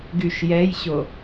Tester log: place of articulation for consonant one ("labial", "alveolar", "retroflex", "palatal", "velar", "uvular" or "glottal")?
velar